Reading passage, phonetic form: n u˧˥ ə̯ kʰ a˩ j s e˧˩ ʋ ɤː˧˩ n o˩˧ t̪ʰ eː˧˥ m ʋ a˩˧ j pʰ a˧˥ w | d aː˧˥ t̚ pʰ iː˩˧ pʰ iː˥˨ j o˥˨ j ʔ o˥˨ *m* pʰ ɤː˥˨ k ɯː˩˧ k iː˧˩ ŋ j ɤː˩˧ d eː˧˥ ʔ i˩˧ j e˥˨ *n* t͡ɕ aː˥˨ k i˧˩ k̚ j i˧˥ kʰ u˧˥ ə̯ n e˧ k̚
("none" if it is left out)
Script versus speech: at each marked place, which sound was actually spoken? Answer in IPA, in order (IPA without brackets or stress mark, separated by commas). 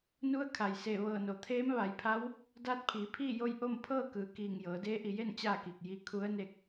m, n